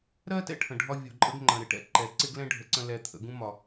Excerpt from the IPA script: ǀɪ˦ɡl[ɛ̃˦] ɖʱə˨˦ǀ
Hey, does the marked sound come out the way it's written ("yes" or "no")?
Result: yes